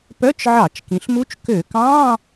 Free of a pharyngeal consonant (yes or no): no